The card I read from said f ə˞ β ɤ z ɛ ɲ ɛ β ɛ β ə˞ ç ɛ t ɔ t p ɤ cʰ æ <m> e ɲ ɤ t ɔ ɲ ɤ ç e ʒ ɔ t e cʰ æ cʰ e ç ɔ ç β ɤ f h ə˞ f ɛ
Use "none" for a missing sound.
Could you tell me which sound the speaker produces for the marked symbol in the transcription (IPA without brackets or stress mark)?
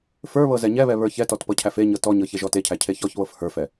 f